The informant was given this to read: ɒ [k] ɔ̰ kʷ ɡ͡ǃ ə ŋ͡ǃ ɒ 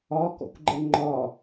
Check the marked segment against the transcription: correct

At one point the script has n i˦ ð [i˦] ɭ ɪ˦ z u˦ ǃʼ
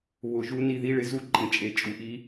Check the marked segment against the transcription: correct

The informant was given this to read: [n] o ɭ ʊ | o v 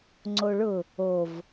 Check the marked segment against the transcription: incorrect: ŋ͡ǀ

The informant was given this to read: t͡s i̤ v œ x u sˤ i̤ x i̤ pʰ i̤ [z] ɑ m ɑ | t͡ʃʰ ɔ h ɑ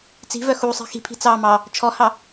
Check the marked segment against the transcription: incorrect: t͡s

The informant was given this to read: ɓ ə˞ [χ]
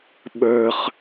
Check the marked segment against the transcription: correct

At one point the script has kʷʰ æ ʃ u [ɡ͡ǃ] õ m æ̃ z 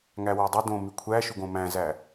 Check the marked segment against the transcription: incorrect: ɡ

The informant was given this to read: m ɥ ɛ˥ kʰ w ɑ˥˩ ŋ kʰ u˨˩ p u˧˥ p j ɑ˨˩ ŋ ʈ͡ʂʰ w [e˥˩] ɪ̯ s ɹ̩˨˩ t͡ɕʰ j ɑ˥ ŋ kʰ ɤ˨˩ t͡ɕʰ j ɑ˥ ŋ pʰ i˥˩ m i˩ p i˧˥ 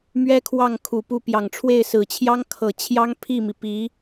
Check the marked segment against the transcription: correct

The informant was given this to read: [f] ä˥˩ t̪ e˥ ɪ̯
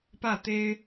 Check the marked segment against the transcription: incorrect: p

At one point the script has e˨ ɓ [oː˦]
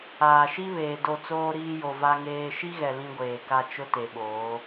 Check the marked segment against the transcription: incorrect: oː˨˦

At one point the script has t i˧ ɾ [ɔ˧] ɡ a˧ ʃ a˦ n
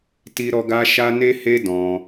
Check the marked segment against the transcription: correct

